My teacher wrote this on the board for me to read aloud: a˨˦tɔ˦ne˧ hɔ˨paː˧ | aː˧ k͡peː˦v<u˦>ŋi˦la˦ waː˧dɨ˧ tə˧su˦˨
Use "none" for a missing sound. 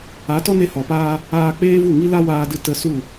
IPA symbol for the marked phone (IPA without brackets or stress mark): u˦˨